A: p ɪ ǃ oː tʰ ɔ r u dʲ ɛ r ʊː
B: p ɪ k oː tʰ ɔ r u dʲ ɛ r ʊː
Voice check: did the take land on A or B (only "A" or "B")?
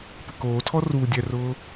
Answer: B